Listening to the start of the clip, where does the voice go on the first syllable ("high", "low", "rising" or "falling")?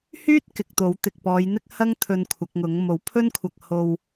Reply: high